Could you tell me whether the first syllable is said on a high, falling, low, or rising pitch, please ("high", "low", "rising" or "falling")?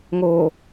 low